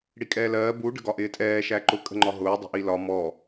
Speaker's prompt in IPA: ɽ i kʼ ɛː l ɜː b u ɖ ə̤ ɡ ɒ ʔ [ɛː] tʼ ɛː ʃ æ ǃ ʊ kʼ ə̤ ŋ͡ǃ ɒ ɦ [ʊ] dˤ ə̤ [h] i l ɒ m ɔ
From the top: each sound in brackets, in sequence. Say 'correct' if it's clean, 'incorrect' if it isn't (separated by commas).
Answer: incorrect, incorrect, incorrect